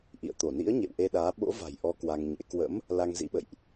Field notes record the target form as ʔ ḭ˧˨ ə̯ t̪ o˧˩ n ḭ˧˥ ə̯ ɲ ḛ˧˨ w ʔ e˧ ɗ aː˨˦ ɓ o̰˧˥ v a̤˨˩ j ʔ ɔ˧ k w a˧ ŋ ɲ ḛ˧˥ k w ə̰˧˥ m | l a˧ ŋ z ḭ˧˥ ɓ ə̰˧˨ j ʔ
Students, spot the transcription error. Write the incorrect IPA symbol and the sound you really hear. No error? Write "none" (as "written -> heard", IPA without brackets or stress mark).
none